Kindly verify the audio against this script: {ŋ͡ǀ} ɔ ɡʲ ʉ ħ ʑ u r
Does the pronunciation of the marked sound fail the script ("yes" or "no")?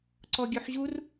yes